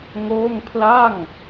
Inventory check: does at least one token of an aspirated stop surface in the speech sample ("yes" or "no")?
yes